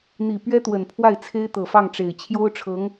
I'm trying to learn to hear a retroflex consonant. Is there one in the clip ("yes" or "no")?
yes